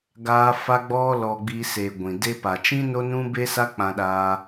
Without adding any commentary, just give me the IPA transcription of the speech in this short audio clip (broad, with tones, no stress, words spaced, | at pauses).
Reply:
ɡaː˦fa˦ɡ͡bɔ˦ lɔ˧ɡ͡bi˧se˨ ɡʷĩ˨ de˧pa˨t͡ʃĩ˦ no˦nũ˦be˦sa˦ k͡pã˧ɗaː˧